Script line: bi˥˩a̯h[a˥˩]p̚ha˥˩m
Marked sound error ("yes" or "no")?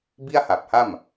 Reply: yes